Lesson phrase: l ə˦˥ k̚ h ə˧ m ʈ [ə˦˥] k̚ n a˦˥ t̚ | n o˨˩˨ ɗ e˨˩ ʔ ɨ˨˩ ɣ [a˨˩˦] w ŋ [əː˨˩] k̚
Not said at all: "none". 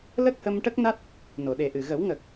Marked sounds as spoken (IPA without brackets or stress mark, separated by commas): ə˦˥, ə˨˩˦, əː˨˩